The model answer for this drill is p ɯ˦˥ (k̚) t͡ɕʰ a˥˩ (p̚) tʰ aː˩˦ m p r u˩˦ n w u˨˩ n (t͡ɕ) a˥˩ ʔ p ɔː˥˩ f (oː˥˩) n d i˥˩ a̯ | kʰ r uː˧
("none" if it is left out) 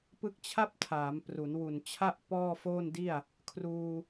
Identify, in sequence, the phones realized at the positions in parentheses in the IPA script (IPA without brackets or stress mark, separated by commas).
k̚, p̚, t͡ɕʰ, oː˥˩